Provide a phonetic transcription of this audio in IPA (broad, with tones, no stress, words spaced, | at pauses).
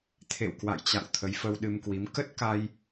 t̪ʰḛ˧˨wkwa̰˧˨jt͡ɕa̰˧˨w t̪ʰə˨˦jfə˧wɗɨ˧mkwi˨˦m kə˦˥t̚ka˧j